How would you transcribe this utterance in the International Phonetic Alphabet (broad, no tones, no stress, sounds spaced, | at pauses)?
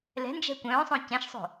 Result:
l ɛ̤ n d͡ʒ ɛ̤ kʷ œ̃ː sˤ õ c ɛ̃ ʃ sˤ o̤